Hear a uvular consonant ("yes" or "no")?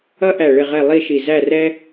yes